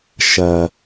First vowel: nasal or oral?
oral